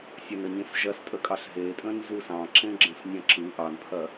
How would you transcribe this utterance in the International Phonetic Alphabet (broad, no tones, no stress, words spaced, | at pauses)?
sʲɐnəɲẽs ʒɐstʼəkʼɑɬ ɦe tʼə̃nzusɑ̃ ǁẽɡ͡ǁə̃snʲɐ̃ǁɯ ʔɑnpʰɐ